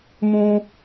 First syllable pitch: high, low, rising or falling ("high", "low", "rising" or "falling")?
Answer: high